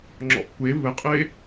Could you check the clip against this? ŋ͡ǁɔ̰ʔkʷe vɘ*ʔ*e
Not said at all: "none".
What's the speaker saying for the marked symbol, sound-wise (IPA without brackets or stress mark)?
qʼ